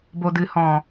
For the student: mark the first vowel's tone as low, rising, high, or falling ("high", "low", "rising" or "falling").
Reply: low